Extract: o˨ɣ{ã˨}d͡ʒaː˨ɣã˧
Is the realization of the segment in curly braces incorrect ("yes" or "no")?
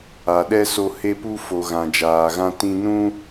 no